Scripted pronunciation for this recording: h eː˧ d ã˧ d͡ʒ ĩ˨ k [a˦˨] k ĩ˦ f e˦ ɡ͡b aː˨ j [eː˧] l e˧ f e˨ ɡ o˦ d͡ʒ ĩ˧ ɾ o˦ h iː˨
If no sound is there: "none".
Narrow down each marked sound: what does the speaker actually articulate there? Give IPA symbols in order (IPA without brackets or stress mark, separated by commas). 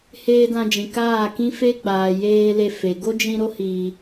aː˦˨, eː˧